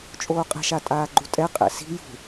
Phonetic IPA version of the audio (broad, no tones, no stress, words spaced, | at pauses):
t͡ʃʼoːqʼɛ̤ʃa tʼaːɡ͡ǃutʼɛ qʼɛ̰si̤ jṳ